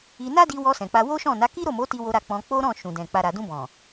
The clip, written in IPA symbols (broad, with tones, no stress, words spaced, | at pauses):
i˧ na˦di˧wɔ˧ sɛ̃˨k͡pa˧ wo˦ʃɔ̃˦˨na˨˦ ki˦ɾo˦˨mo˨˦ ti˧wo˧ɾa˧ k͡pɔ̃˧ k͡po˦ ɾɔ̃˦˨ ʃũ˨dɛ̃˨ k͡pa˨ɾa˨dũ˧bɔ̃˨